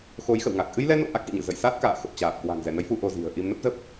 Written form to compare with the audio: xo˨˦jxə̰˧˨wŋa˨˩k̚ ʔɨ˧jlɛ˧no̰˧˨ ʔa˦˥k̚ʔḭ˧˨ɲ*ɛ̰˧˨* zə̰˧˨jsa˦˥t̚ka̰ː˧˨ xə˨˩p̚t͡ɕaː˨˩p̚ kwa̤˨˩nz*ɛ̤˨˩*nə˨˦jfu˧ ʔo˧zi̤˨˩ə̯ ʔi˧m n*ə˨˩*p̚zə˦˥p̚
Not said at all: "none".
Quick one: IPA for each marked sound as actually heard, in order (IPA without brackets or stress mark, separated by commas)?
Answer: ɨ̰˧˨, ɛ˧˩, ə˦˥